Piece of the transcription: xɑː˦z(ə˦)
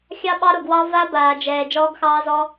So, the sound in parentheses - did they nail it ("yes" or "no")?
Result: no